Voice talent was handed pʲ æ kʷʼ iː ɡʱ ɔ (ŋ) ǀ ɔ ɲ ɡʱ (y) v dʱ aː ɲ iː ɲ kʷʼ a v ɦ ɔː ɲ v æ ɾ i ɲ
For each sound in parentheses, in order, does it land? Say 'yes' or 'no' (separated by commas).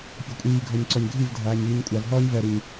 no, no